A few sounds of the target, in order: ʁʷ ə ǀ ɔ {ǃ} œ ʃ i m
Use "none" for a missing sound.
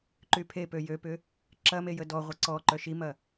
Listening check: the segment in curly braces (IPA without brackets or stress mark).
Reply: ǃ